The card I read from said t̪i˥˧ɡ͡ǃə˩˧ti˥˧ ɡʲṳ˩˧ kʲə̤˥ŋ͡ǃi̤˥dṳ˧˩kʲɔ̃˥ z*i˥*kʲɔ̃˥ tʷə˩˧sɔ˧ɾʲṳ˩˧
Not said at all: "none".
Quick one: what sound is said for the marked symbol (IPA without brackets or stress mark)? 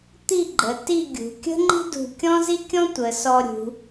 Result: i˥